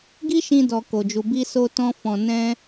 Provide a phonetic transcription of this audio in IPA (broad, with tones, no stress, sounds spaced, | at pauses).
ɡ i˦ ʃ ĩ˧ d ɔ˨ k o˨ d͡ʒ u˨ b i˧ s o˧ t ɔ̃˧ f ɔ̃˨ n ɛ̃˧